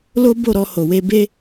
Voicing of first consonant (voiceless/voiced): voiced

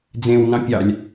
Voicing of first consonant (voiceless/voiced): voiced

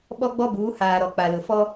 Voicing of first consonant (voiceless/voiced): voiced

